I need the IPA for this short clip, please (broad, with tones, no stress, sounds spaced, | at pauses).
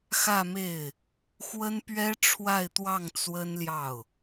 x ä˥˧ m e˥˩ ɪ̯ | x w ə˥ n p ɥ ɛ˥ ʈ͡ʂʰ w a˥˧ ɪ̯ t̪ w ɑ˥˩ ŋ t͡s w ə˥ n l j ɑ˥˩ ʊ̯